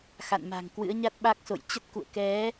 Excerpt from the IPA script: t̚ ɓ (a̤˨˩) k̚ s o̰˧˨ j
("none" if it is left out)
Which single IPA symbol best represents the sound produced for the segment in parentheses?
a˦˥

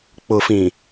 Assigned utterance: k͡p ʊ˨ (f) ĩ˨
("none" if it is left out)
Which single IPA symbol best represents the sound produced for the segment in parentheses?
f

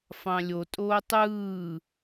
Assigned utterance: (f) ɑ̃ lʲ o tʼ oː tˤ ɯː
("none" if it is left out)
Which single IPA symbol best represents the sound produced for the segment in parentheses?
f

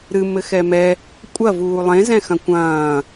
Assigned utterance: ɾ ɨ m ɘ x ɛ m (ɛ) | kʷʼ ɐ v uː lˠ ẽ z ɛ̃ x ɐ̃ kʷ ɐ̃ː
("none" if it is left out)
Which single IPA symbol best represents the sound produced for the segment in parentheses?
ɛ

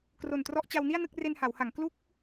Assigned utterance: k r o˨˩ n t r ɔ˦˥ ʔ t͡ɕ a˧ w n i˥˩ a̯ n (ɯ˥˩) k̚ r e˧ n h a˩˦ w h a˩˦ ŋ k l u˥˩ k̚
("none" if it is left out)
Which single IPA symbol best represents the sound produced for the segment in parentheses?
ɯ˥˩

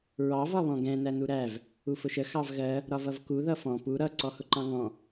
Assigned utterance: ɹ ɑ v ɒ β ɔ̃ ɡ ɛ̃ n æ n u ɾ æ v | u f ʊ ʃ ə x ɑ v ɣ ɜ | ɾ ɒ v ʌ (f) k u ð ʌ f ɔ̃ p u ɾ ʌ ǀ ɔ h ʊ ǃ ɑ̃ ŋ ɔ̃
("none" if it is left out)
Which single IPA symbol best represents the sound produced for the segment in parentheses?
v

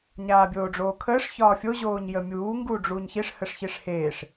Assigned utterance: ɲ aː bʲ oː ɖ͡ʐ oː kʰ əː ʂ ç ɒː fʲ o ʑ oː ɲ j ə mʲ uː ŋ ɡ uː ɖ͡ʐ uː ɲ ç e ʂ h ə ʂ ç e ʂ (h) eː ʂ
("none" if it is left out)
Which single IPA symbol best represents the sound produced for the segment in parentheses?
h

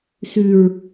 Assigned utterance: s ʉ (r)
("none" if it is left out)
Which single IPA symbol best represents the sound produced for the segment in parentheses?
ɹ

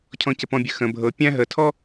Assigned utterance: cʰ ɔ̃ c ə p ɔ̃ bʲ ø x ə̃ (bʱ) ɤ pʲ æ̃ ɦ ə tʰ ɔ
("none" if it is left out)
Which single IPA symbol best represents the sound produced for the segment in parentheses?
bʱ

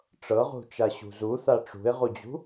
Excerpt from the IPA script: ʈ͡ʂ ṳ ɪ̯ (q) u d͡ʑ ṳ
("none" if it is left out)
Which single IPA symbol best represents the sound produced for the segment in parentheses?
ʁ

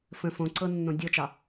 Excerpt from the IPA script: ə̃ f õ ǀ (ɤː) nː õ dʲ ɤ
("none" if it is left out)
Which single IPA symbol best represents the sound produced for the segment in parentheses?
ɤ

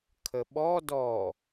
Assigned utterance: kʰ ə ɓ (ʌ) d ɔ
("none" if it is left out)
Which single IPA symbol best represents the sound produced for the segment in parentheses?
ɔ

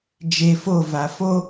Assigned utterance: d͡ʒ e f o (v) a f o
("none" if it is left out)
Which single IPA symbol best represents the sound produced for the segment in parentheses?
v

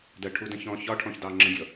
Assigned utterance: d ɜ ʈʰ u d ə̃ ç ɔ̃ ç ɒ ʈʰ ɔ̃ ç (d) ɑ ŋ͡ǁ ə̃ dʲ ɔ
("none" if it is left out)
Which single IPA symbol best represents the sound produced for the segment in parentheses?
d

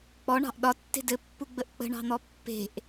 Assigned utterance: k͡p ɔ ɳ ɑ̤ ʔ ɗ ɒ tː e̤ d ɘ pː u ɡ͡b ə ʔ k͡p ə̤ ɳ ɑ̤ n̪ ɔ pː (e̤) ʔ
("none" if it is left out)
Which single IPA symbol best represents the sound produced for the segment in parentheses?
e̤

